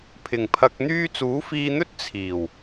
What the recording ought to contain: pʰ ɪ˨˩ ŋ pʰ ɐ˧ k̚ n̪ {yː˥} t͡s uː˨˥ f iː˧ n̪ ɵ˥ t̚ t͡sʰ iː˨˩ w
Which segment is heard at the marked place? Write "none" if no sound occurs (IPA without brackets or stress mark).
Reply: yː˥